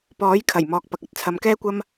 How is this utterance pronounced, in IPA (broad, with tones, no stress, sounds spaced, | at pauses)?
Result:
p ɔː˨˥ j kʰ ɐ˨˩ j m ɔː˨ k̚ p ɐ˨ k̚ ɐ˥ t̚ t͡sʰ ɐ˨˧ m k ɛː˥ kʷ ɐ˥ m